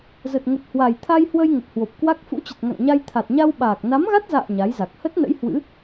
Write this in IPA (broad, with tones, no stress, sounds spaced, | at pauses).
z ə˨˩ t̚ ŋ ə˨˩ t̚ h w a˨˩ j t̪ʰ a˧ j h w ə˧ j ŋ ə˨˩ t̚ h w o˨˩ p̚ k w a˦˥ k̚ f ṵ˧˥ t͡ɕ ə˨˩ t̚ ŋ a̰˧˨ ŋ ɲ a˧ j t̪ʰ a˨˩ t̚ ɲ a˧ w ɓ aː˨˩ k̚ n a˨˦ m ɣ a˦˥ t̚ z a̰ː˧˨ ɲ a˨˦ j z a˨˩ k̚ h ə˦˥ t̚ n ə̰˧˥ j h w ɨ̰˧˥